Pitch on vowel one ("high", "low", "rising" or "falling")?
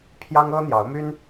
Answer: high